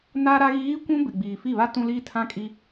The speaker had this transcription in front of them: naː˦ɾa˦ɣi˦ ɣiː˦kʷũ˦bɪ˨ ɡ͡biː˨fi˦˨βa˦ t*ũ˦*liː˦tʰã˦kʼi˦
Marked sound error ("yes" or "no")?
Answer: no